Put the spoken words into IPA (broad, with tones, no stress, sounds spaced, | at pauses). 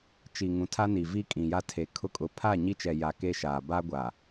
t͡ʃ i˨ ŋ ũ˨ tʰ a˦ n i˨ v i˦ kʼ ĩ˨ j a˦ tʰ e˨ kʰ ʊ˦ kʼ ʊ˨ pʰ a˦˨ ɲ i˦ t͡ʃ ɛ˨ j a˨ k e˦ ʃ aː˨ b a˦ ɡʷ a˨